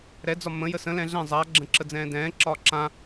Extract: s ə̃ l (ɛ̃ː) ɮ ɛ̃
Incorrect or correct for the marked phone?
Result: incorrect: ɛ̃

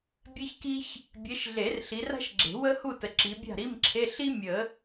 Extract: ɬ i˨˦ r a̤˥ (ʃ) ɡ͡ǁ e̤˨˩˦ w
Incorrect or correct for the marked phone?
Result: correct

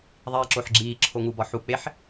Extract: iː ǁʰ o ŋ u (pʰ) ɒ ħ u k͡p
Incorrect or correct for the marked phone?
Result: incorrect: b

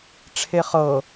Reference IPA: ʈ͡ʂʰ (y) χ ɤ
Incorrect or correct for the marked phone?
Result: incorrect: e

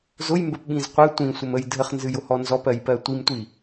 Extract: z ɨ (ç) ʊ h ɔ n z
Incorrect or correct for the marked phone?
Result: incorrect: j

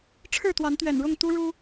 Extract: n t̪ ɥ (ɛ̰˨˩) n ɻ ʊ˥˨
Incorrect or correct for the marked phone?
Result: correct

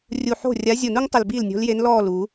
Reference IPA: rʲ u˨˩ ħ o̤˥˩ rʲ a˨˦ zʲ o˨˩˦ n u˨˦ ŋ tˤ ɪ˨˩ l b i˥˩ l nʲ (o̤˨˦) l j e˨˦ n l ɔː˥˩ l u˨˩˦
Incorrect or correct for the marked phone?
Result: correct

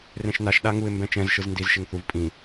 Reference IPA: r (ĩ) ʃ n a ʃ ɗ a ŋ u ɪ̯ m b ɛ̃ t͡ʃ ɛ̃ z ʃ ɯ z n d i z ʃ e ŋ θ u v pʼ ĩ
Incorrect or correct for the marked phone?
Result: incorrect: ẽ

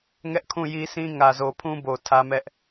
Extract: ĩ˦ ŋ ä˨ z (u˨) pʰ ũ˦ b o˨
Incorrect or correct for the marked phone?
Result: incorrect: o˨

